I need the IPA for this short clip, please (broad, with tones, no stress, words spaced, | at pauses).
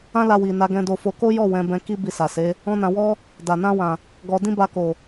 ã˦la˧ wi˨na˨˦ ɡɛ̃˦do˦fo˦ ko˦jɔ˦˨ wɛ̃˨˦ bɛ̃˧ki˦ bi˧sa˨ se˨˦ | ɔ̃˦nã˧ wɔ˦ | da˨ nã˧wã˨ | ɡɔ˧ dĩ˦ba˧ko˨